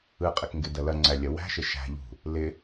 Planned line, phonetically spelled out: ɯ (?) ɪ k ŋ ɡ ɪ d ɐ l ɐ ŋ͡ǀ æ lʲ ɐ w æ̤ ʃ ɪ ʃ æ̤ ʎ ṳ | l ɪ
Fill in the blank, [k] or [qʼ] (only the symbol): qʼ